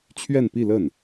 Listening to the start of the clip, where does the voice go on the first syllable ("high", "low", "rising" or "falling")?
falling